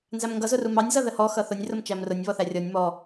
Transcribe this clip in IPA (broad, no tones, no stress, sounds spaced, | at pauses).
n z æ m ŋ ɡ ʌ z ʊ r u m ɑ nʲ z ʌ ð ə h ɔ x ʌ θ ʊ nʲ r ʊ m t͡ʃ æ m r ʊ nʲ β ɔ θ æ rʲ ɔ nʲ m ɔ